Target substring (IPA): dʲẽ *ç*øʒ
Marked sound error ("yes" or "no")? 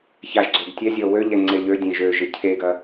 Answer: yes